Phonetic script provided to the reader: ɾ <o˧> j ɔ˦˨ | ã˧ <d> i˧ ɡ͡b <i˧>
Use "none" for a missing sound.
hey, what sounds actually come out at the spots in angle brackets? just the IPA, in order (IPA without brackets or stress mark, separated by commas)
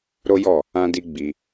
o˦, d, i˧